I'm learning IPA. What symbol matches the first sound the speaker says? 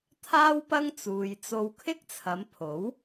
t̪ʰ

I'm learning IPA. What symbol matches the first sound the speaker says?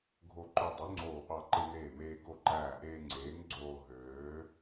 ɡʱ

